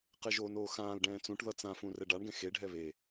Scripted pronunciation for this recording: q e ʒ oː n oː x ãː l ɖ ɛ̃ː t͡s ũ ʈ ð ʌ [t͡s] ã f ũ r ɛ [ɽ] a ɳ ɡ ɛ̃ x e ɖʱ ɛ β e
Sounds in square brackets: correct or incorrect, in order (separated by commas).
correct, incorrect